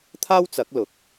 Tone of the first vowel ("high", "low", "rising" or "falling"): high